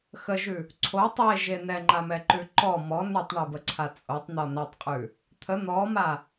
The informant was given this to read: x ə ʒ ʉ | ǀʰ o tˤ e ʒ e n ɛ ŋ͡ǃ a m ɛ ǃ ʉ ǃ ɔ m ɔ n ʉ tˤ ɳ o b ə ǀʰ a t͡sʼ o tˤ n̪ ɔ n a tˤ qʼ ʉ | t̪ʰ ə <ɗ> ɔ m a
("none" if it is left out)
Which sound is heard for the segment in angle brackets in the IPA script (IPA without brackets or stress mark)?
n̪